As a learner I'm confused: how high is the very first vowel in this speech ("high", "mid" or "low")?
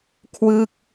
high